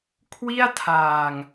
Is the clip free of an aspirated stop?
no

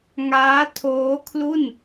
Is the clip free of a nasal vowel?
yes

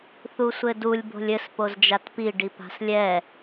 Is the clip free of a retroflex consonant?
no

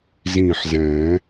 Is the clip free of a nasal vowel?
no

